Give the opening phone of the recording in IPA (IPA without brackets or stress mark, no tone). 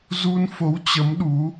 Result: z